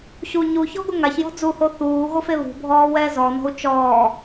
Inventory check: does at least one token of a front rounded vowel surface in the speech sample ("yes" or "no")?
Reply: no